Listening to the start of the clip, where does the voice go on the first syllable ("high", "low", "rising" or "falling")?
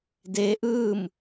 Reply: rising